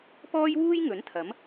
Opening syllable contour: high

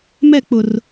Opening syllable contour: falling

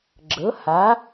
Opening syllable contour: rising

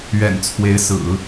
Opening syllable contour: low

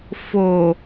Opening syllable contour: low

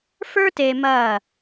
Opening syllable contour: high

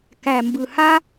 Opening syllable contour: low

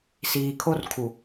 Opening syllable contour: low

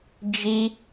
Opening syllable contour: high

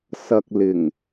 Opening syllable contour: low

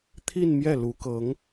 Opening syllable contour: falling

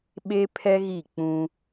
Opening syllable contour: high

